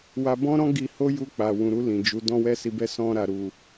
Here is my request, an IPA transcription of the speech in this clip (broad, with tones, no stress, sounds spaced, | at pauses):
w a˧ b ɔ̃˦ ɾ ɔ̃˦ ɡ i˧ h o˦ j u˧ k͡p a˨ w ũ˨ ɾ u˧ l ĩ˨ d͡ʒ u˨˦ d ɔ̃˧ w ɛ˧ s i˨ b ɛ˧ s ɔ̃˧ ɾ a˨ ɾ u˨